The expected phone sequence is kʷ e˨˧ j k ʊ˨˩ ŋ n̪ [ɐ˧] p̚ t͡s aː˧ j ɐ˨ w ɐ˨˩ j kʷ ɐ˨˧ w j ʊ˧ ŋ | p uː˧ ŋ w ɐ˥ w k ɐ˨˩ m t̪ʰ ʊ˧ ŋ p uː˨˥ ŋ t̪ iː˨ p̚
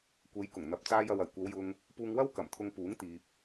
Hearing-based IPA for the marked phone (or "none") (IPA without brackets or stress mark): ɐ˨